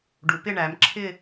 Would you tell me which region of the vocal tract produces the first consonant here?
retroflex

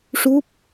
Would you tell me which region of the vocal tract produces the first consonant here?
retroflex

